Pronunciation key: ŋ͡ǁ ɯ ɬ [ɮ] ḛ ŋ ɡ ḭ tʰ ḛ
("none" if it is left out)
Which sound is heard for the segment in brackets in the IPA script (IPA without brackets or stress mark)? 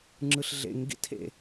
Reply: ɮ